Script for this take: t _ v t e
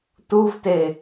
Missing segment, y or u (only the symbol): u